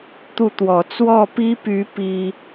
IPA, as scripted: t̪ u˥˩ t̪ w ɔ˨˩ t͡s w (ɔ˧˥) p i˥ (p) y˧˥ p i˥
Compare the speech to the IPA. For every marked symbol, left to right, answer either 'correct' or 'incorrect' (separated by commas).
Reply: incorrect, correct